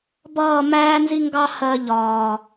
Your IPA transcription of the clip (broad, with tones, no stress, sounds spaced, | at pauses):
b ʌː˦˨ m æː˦ n z i˦ ŋ ɡ ɑ˦ h ɜ˧ ʎ ɒː˨